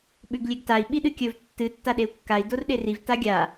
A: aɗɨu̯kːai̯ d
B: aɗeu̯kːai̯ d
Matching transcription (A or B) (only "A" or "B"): B